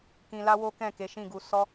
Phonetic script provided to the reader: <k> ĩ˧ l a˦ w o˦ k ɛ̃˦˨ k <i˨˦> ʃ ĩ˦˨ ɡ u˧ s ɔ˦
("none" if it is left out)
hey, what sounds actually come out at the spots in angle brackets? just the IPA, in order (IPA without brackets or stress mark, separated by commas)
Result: k, e˨˦